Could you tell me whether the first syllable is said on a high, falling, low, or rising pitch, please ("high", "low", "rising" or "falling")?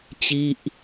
falling